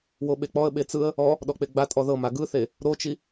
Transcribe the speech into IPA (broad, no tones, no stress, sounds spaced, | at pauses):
w o ɓ e k͡p ɔ ə̯ ɓ e t͡s ɯ ə̯ | ɔ | ɗ ɔ k͡p e ɡ͡b a tʼ ɔ ð ɤ m a ɡ ɯ θ e | ɾ o t͡ʃ i